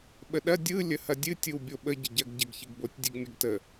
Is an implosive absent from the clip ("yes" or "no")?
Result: no